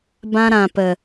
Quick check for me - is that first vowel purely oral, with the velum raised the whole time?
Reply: no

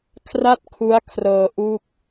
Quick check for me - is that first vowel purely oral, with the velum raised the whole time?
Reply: yes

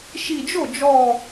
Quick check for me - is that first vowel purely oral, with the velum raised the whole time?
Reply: yes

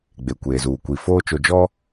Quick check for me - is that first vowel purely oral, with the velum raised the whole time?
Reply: yes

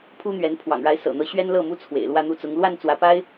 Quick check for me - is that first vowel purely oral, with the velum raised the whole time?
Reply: yes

